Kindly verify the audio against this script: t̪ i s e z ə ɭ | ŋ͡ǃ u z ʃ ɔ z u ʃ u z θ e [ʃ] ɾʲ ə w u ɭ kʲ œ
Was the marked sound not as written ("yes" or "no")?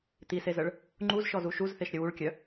no